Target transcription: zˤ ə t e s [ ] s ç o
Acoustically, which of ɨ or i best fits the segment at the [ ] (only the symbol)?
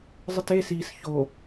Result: i